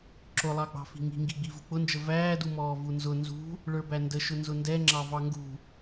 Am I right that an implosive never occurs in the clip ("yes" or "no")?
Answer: yes